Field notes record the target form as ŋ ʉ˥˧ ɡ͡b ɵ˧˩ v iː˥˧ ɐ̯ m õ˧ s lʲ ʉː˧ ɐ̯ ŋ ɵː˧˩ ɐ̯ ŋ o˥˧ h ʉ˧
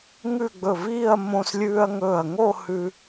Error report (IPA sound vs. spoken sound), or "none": none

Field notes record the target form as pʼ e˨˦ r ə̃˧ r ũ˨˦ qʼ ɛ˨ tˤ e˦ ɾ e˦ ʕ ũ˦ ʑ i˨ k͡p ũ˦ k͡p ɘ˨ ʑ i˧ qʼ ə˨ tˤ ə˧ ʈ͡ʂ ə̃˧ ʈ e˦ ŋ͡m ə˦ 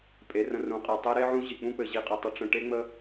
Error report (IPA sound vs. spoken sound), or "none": none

